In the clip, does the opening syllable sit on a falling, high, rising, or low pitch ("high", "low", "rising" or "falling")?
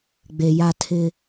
low